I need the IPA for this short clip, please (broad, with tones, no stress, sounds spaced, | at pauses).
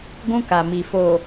ɡʷ ũ˦ k a˨ m i˨ f o˨